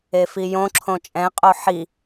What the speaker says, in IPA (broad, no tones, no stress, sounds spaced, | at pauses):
e f i j õ ǁʰ õ t͡ʃʼ ɛ̃ qʼ o ħ i